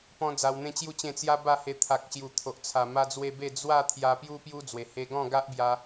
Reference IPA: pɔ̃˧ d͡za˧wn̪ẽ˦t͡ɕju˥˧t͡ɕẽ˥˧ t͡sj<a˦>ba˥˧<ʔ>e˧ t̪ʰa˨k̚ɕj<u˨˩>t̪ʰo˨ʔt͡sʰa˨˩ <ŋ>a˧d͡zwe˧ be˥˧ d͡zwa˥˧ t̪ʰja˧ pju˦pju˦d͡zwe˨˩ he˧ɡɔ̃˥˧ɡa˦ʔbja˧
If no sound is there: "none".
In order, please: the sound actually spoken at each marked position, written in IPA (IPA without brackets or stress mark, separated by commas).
a˦, h, u˨˩, m